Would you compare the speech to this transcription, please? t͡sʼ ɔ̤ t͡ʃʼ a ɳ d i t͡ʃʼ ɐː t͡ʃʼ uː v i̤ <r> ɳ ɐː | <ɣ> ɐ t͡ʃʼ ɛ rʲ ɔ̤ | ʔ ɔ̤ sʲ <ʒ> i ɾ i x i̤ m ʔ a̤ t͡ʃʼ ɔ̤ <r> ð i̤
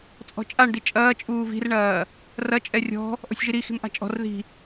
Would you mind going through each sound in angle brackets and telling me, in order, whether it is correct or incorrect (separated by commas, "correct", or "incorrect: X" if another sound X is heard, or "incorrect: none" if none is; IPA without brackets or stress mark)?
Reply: correct, incorrect: r, correct, correct